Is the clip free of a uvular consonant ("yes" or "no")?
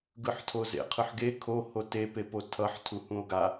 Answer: no